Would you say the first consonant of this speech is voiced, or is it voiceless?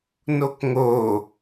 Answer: voiced